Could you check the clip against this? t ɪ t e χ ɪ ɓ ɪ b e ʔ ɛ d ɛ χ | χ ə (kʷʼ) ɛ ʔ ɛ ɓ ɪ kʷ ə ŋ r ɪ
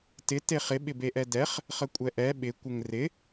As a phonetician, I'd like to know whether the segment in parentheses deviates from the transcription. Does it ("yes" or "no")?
no